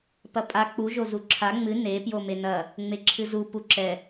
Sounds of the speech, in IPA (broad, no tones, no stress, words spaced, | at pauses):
pɐpʼa k͡pu ʒozuǁʰa ŋ͡mɨ ne pjomenɐ | ŋ͡meǁʰɨzu puǁɛ